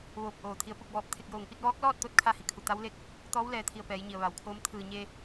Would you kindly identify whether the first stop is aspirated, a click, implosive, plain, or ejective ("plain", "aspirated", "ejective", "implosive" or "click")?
plain